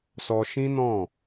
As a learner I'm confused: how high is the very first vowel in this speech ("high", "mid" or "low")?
mid